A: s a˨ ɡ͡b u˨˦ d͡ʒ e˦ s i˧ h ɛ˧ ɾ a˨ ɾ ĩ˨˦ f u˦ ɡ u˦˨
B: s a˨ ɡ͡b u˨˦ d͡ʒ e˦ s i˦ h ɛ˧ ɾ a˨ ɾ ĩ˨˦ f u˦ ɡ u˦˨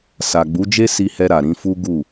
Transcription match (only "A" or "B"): A